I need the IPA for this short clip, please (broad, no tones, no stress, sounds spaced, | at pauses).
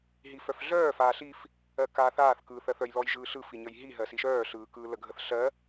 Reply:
ɦ i f œ f ɮ œː f aː ɬ i f | ɜ k aː θ aː θ k ɯː θ ɜ θ œ j l ɔ j ʒ ɯː ɬ ɯ f i ɲ ə j ɦ i ɦ ɜ s i ʃ œː ɬ ɯː k ɯː l ə ɡʱ ə θ ɬ ɜ